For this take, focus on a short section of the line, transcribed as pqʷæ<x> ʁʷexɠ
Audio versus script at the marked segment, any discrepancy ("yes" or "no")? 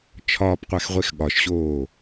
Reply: no